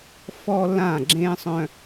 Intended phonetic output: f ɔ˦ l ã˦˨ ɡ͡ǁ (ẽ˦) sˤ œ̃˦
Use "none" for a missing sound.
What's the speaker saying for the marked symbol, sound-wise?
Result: ẽ˦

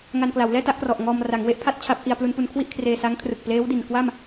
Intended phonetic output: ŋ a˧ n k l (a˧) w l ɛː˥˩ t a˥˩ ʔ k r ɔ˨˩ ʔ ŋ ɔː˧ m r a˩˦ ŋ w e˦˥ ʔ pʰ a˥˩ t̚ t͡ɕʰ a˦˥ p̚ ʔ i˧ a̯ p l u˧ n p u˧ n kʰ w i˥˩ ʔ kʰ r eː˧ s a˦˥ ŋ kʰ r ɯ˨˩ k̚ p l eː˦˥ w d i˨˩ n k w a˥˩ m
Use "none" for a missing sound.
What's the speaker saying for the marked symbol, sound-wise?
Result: a˩˦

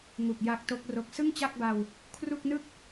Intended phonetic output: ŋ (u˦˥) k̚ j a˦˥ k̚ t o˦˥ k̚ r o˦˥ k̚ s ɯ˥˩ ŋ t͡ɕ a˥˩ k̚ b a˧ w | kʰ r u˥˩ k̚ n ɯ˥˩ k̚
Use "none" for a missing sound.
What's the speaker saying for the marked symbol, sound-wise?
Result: u˨˩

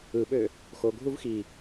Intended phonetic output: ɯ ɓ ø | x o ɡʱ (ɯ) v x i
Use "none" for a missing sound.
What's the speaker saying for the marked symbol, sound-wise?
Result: u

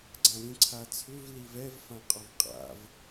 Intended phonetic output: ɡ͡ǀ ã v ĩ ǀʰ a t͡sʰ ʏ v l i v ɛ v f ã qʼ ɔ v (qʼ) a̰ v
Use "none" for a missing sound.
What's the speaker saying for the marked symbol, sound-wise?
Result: qʼ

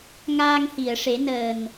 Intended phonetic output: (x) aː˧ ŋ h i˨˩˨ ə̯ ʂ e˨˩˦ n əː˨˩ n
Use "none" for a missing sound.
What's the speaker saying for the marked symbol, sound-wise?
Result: ŋ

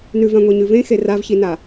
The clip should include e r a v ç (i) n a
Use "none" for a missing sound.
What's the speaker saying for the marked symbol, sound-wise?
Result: i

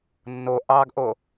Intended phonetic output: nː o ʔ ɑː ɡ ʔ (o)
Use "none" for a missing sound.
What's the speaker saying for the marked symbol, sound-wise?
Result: o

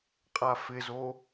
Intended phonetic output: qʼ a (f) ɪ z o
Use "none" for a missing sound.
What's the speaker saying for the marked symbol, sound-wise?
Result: f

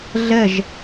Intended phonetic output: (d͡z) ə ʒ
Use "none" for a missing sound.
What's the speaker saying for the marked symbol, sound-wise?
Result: ɮ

